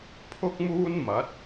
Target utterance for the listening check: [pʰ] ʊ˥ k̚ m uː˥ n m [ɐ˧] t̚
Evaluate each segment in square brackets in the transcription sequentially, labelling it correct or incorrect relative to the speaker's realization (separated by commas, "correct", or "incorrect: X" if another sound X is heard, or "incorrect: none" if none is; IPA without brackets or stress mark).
correct, incorrect: ɐ˨˥